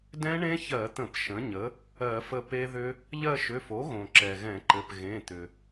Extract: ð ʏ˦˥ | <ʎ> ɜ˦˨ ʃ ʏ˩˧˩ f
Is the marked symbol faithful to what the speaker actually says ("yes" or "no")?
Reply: yes